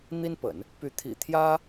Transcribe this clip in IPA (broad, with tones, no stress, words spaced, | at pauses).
n̪i˥npə̰˨˩˦n | py˧˥t̪ʰḭ˨˩t̪ʰjä˥